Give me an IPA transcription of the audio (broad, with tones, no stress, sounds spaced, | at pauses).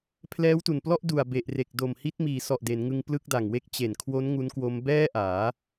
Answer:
pʰ l ɛː˦˥ w t u˨˩ n p l ɔ˥˩ ʔ d u˨˩ a̯ b e˨˩ ʔ r e˨˩ k̚ d o˨˩ m h i˦˥ t̚ m iː˩˦ s ɔ˨˩ ʔ d e˩˦ n ŋ ɯ˧ ŋ p l ɯ˥˩ k̚ d a˨˩ ŋ w e˥˩ k̚ t͡ɕ e˨˩ n kʰ w o˦˥ n ŋ u˦˥ n k w o˦˥ m b ɛː˥˩ ʔ aː˩˦